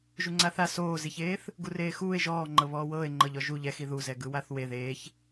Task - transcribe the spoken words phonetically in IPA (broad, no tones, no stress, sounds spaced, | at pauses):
ʒ u ŋ͡ǀ a θ a s oː z i ç eː θ | ɡ u r eː x uː e̯ ʒ ɔː ŋ͡ǃ ɤ β ɔː w ɤː e̯ ŋ͡ǃ ɤ ʎ ɔ ʒ u ʎ ɛ x i ð u z ɛ ɡ ɯ w a θ w e ð eː ç